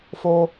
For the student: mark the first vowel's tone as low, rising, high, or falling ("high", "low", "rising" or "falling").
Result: high